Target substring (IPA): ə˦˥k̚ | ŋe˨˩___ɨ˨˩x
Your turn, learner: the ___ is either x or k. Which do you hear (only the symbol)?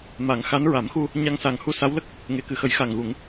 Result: k